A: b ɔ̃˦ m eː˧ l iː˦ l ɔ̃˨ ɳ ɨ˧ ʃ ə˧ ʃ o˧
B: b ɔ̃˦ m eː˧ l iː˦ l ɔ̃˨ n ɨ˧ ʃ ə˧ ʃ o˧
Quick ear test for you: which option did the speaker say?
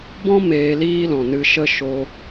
B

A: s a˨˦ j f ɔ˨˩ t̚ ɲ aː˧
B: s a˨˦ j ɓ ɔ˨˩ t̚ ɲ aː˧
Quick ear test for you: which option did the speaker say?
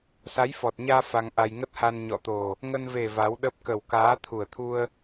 A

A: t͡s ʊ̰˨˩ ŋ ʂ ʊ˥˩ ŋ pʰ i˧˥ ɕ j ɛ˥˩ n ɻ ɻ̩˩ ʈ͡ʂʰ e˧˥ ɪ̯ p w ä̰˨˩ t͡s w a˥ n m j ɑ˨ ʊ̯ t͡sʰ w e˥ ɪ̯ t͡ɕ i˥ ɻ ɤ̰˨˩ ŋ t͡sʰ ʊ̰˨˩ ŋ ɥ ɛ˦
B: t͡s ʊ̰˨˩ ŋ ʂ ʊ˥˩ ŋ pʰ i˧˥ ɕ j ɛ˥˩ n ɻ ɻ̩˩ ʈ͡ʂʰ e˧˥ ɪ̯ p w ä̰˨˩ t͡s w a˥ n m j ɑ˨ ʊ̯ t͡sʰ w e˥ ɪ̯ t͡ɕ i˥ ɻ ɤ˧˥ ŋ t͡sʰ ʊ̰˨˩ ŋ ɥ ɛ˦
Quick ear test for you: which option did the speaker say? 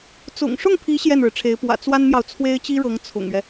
B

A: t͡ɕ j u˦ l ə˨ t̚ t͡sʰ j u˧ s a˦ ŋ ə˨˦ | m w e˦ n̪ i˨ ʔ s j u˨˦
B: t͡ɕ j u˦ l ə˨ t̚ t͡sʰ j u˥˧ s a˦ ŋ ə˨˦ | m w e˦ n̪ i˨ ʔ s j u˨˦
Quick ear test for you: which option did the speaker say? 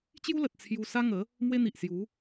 A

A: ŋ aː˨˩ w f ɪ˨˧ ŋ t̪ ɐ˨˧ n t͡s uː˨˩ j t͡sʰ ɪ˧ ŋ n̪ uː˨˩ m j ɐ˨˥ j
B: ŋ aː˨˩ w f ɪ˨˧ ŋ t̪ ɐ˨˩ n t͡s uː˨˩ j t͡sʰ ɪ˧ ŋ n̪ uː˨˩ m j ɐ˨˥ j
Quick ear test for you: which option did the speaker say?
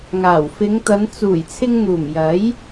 A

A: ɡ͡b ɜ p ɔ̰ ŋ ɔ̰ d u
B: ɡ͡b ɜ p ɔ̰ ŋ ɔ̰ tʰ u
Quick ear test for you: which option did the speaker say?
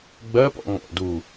A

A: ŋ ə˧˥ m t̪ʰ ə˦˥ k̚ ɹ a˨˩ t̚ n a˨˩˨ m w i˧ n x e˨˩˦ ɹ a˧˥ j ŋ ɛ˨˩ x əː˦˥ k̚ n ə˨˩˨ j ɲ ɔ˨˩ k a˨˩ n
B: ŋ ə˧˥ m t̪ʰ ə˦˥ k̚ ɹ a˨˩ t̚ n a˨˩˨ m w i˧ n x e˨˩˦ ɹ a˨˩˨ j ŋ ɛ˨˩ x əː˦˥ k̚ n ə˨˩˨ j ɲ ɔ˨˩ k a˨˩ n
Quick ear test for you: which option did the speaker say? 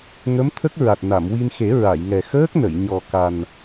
B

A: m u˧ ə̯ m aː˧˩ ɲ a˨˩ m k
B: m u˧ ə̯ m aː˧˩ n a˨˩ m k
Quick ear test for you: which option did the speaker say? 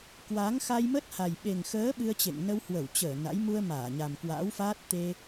A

